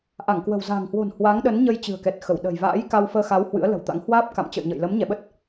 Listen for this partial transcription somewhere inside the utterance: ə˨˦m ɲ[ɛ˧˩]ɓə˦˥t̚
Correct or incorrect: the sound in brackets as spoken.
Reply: correct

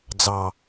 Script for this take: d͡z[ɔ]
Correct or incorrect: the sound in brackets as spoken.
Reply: incorrect: ɑ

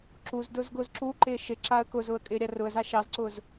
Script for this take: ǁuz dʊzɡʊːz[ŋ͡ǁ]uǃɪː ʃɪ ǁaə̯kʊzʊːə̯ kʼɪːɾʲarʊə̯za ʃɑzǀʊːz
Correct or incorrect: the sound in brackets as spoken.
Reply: incorrect: ǁ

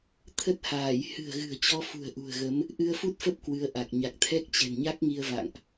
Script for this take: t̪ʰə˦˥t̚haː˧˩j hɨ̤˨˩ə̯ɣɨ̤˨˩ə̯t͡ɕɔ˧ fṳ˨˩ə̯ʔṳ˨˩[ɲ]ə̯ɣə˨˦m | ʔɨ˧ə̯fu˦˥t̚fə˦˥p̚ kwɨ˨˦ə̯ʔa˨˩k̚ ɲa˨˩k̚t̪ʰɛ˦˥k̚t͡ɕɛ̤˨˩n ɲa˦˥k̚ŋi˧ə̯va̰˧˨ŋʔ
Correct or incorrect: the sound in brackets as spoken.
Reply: incorrect: none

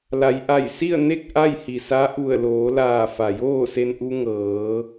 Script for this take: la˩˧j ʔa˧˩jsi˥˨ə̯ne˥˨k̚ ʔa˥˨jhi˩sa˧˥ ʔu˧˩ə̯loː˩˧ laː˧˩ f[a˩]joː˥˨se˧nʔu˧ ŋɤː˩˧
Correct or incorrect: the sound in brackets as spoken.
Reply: correct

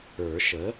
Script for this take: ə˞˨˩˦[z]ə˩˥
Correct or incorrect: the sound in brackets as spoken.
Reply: incorrect: ʃ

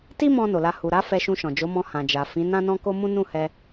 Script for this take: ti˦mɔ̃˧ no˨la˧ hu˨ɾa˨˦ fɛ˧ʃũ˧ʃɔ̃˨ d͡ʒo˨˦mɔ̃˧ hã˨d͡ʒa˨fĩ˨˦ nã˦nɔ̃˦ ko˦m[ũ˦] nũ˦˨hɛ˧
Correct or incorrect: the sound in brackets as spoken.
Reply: correct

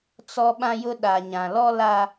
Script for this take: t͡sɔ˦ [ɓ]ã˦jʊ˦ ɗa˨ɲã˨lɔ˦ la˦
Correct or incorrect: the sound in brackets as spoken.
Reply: correct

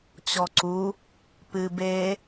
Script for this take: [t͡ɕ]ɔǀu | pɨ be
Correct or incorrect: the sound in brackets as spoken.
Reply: correct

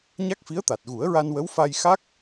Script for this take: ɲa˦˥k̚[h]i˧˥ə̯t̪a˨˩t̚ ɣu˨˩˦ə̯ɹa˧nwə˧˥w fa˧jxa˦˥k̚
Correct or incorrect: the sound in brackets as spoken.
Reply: incorrect: f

